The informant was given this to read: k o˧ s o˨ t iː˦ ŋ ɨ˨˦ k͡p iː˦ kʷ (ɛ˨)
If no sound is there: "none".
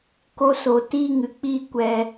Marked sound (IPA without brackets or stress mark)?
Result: ɛ˧